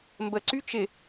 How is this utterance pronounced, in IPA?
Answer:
mbə ǀyt͡ʃɪ

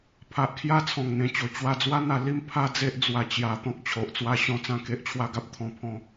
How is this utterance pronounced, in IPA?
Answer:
pʰa˨ʔkʰja˥˧ t͡sʰɔ̃˨˩ŋn̪ẽ˨˩t͡ɕo˨˩ t͡ɕwa˧d͡zwa˦n̪a˧ li˦m pʰa˦d͡ze˦ʔ d͡zwa˧t͡ɕja˧ t̪ɔ̃˦k̚t͡ɕʰo˨ʔt͡swa˦ɕɔ̃˥˧ t͡sã˥˧ke˦ʔt͡ɕʰwa˦ɡa˦p̚ t̪ʰɔ̃˥˧pʰɔ̃˥˧

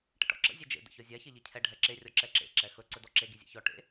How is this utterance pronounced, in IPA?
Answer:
ʈə̰ʈɔ̰ǁə̰ zʲɛd͡ʒḛ də̰çɔzʲa çeʎicʰɛ ɖʱɛǁe rʲɔǁɛǁḛ ǁɛxɵ ǀɵdɔǁe ɡizʲḛçɔ ʈḛ

